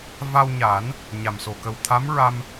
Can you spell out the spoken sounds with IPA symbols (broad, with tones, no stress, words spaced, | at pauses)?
va˧wɲa˨˩˦n | ɲa˨˩mso˨˩ kə˨˩wt̪ʰa˧˥mɹa˧m